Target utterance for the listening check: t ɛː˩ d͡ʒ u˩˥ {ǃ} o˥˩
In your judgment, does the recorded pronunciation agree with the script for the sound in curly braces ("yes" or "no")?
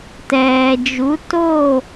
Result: no